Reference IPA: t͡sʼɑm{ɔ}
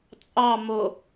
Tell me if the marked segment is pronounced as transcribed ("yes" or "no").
no